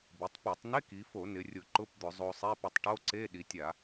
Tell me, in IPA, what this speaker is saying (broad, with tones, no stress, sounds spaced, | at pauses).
b i˩˧ tˤ p e˧˩˧ tˤ n e˧˥˧ k i˩˧ f o˧˩˧ n ɪ˩˧ rʲ ʊ˧˩˧ ǃ ʊ˧˥˧ p d̪ ʊ˧˩˧ zˤ o˧ sˤ e˧˥˧ p ʊ˧ tˤ ʈ o˧˥˧ ǀ e˧˥˧ ɗ i˩˧ tʲ a˧˩˧